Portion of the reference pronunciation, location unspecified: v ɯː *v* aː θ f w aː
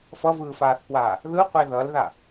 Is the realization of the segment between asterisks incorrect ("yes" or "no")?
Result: yes